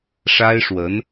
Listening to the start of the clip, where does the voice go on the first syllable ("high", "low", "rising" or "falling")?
high